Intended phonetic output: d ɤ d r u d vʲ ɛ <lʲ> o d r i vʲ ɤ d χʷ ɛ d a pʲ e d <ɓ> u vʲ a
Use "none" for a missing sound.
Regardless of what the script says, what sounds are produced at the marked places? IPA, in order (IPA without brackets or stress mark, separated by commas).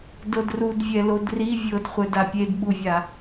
l, ɓ